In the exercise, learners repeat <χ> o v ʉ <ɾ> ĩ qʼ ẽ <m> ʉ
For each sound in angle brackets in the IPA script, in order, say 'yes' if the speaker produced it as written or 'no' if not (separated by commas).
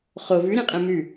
yes, yes, yes